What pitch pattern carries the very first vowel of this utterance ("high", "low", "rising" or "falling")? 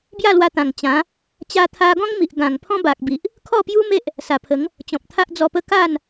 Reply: falling